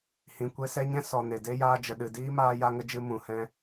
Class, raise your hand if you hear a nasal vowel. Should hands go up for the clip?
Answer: yes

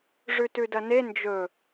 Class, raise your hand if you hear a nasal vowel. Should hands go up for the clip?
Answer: no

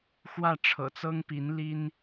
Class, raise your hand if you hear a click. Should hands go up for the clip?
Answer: no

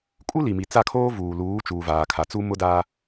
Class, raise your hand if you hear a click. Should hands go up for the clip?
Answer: no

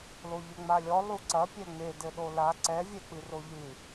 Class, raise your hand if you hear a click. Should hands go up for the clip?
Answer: yes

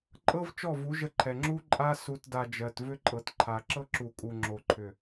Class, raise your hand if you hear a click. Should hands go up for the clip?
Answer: yes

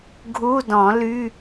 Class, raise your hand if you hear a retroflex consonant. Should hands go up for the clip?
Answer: no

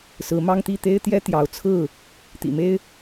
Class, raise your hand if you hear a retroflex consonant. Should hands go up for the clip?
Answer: no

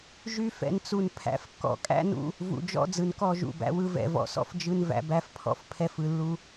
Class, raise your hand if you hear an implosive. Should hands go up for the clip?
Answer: no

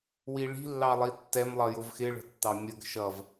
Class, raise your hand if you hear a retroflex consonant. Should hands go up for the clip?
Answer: yes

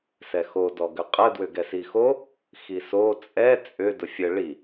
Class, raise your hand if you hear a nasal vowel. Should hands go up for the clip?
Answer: no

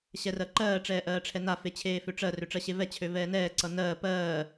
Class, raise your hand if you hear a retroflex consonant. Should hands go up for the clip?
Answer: yes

